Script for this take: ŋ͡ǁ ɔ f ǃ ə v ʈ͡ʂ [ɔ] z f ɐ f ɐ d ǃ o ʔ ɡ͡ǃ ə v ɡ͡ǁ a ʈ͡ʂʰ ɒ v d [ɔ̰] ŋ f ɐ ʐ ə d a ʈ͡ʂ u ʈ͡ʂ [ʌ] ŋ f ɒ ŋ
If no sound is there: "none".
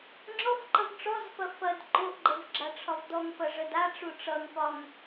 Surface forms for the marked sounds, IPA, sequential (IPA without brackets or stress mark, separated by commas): ɔ, ɔ, ʌ